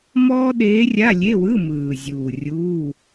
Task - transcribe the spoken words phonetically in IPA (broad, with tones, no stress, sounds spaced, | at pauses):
m ɔː˥ ɗ eː˧˥ rʲ a˧˥˧ lʲ e˧˥˧ w ɯ˧˥˧ m ɯː˨˩ zʲ uː˨˩ rʲ uː˧˥˧